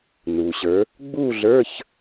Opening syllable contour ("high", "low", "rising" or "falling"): low